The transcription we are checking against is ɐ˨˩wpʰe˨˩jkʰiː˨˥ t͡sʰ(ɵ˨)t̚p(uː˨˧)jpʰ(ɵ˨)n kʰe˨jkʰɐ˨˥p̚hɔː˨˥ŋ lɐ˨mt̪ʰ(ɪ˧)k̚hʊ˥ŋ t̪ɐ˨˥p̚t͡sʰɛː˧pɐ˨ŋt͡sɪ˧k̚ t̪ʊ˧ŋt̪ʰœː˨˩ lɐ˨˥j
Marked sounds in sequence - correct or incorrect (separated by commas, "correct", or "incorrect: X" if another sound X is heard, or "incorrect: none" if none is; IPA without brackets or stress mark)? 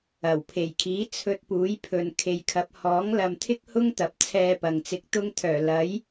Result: incorrect: ɵ˧, incorrect: uː˨˥, correct, incorrect: ɪ˥